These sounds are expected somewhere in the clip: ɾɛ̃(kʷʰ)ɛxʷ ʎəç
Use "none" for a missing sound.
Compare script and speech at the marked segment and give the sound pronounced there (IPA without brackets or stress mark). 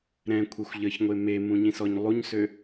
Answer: kʷʰ